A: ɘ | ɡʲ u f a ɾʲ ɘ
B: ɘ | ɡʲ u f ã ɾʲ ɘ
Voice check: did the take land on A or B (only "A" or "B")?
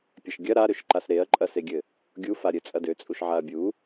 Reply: A